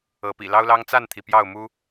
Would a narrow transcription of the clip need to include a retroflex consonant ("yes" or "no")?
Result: no